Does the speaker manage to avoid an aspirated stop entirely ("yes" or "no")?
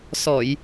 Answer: yes